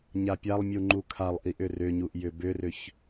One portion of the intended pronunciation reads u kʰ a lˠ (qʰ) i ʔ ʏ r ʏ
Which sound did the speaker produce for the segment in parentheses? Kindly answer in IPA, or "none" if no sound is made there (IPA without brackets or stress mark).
ʔ